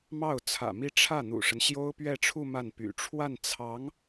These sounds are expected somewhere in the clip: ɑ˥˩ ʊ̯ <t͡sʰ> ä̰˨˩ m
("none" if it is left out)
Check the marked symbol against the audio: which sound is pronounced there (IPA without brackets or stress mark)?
t͡sʰ